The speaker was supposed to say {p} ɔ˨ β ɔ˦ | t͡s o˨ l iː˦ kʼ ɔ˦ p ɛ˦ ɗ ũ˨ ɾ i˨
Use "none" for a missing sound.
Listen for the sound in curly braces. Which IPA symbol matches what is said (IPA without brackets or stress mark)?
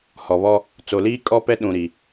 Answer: h